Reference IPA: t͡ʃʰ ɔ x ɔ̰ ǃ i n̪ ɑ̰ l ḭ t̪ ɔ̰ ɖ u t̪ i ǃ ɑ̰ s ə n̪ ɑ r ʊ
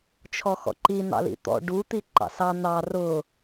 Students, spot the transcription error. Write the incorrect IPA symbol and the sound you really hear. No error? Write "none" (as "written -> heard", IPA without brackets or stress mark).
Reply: ə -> ɑ